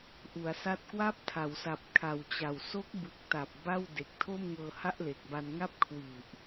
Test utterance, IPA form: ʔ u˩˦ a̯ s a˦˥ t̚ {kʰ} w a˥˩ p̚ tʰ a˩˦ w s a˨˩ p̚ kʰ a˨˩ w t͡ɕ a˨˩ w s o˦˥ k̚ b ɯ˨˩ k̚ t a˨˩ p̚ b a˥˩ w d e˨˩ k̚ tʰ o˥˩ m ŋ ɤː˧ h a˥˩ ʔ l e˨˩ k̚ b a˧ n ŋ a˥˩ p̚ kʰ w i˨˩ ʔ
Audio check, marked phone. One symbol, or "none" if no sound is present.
k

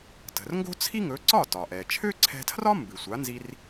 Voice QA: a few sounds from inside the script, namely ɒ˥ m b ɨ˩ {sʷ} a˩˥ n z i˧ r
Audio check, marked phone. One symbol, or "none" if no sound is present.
sʷ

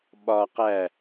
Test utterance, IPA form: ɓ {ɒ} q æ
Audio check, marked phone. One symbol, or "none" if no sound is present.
ɒ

